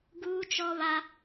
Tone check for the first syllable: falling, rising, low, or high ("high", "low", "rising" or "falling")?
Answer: high